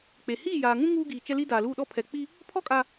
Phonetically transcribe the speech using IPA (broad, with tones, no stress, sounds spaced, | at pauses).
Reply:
k͡p e˨ h iː˦˨ j aː˨ ŋ ũ˦ ŋ uː˦ ɡ iː˨ t͡ʃ ɛ˦ l i˦ d a˨ l uː˦˨ ɗ ɔ˦ pʰ ɛ˨ k͡p i˦ | pʰ ɔ˦ kʼ a˨